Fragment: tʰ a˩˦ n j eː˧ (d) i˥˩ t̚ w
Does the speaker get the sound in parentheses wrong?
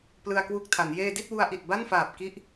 no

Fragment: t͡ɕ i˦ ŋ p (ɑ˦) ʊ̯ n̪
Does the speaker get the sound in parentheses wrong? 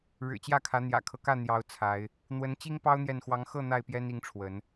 no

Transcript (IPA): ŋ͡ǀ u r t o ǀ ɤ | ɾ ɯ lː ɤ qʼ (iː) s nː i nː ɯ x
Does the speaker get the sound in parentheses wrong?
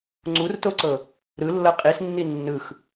yes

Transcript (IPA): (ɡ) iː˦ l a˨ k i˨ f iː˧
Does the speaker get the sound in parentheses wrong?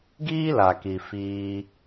no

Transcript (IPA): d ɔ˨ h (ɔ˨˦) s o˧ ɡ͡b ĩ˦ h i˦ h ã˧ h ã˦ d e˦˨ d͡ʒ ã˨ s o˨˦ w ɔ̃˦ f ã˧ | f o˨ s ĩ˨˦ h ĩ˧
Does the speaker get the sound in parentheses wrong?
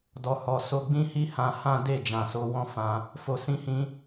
yes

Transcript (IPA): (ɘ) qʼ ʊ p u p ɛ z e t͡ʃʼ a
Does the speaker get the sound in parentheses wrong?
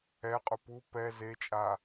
yes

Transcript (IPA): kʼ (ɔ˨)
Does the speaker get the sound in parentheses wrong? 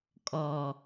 no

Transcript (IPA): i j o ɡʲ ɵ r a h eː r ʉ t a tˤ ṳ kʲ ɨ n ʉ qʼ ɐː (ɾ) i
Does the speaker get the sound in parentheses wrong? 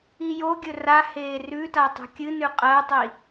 yes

